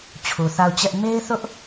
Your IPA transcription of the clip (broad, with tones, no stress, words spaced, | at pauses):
t͡ɕʰu˨θa˦˨ʊ̯t͡ɕɛ˦ʔ me˦ɪ̯θʊ˦ʔ